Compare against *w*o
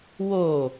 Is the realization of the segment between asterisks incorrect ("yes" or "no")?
no